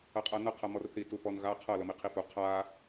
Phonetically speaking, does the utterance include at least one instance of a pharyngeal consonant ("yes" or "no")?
no